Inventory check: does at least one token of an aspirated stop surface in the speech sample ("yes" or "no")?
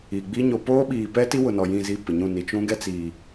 no